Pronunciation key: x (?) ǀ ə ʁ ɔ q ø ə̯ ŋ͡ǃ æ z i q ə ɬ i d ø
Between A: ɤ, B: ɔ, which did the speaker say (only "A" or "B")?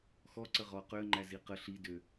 B